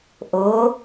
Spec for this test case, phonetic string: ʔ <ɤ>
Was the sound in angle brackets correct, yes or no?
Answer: no